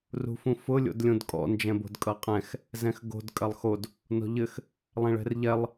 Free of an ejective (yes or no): no